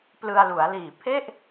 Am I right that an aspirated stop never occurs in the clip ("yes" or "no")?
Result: no